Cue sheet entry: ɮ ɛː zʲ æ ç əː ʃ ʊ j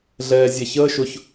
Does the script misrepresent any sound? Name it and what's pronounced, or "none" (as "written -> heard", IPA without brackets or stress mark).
j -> ç